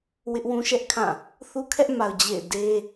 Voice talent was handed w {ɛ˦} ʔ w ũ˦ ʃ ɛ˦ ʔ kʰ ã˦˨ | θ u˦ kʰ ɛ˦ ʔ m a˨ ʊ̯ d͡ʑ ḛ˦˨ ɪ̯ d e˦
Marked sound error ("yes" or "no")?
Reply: yes